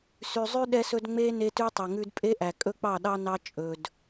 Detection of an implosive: present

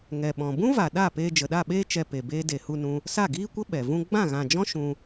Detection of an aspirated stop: absent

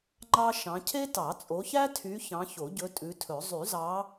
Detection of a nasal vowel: present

